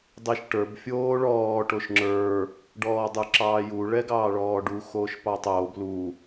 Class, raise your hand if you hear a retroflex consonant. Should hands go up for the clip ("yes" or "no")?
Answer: yes